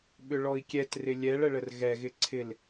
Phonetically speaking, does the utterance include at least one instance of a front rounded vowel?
yes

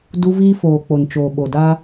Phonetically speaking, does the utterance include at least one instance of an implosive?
yes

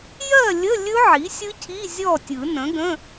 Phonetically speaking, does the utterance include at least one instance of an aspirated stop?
yes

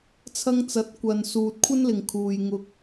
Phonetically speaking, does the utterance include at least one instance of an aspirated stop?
yes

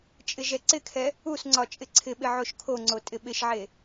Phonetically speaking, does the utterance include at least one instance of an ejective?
yes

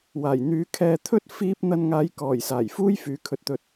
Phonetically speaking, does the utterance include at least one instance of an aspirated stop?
yes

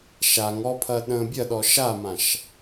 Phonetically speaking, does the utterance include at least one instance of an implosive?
yes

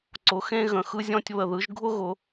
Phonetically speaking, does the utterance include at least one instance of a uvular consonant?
no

